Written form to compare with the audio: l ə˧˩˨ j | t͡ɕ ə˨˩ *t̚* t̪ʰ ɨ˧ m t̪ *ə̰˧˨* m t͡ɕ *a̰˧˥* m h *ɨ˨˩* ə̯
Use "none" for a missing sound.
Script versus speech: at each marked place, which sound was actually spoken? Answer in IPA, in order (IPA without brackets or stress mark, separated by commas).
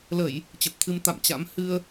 p̚, a̰˧˨, a̰˧˥, ɨ˧